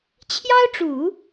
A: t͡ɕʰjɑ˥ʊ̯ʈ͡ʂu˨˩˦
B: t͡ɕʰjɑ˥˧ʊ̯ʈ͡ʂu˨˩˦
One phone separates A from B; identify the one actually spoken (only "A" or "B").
A